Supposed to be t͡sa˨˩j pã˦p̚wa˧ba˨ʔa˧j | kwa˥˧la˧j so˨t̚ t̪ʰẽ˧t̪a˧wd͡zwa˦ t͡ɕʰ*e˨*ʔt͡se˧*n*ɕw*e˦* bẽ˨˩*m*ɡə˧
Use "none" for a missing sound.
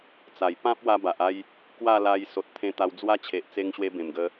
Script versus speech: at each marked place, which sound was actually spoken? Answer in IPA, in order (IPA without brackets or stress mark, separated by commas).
e˨, ŋ, e˧, m